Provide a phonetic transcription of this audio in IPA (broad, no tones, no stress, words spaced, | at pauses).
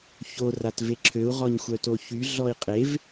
ço ratveǁʰøu̯ ʁɔɲxʷœtoçy ɮɔi̯qʼev